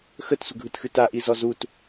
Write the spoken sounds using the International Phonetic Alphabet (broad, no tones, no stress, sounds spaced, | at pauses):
x ə t sʷ ə ɡʱ ɯ t x ɨ t a ʔ i z ɔ z u t